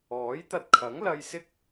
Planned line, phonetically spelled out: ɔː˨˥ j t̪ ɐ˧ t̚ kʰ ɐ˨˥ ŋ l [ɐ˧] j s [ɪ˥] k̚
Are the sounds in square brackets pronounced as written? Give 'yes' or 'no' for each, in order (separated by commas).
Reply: yes, yes